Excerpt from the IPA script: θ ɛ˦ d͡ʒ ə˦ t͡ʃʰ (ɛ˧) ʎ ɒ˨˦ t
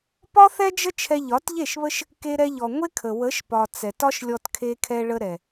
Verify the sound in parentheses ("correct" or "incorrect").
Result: correct